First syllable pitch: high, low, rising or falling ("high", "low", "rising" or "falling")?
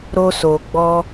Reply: high